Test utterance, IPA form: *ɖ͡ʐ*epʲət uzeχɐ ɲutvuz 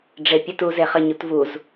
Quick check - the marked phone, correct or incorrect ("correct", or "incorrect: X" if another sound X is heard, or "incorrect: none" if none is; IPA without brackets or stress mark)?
correct